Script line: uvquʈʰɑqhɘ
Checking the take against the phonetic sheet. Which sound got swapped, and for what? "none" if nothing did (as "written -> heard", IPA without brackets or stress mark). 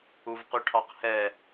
ɘ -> ɛ